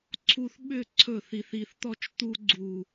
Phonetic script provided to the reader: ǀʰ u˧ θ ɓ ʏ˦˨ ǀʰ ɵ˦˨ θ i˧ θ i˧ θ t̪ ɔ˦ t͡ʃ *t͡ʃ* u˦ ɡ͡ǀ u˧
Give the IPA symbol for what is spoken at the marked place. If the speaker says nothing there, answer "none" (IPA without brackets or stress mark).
t̪